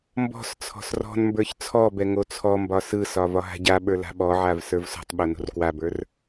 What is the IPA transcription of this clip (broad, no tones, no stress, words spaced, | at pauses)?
mbɔ̤st͡sʰɔ̤s rɔ̤nmbə˞ç t͡sʰɔbɛ ŋot͡sʰɔmbɒ sɯsɒ vɒɦa̤ɟaɓə˞ la̤ɓɔʕav sə˞vsɔ̤tˤɓo no̤rkwabə˞r